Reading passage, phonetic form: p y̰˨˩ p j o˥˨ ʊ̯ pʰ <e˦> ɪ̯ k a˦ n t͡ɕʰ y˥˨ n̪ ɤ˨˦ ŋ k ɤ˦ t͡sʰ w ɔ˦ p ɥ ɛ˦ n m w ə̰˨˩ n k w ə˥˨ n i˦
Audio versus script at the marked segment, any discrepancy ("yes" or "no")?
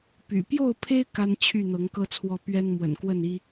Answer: no